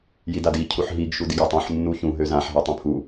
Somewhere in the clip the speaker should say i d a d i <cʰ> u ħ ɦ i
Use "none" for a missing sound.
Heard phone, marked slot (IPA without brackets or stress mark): cʰ